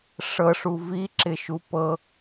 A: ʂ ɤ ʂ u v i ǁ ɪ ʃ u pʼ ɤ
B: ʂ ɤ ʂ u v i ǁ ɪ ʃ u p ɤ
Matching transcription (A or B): B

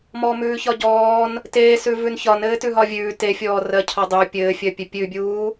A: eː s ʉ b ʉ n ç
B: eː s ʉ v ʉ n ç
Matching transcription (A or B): B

